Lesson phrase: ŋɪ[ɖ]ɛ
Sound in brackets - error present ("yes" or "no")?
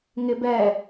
yes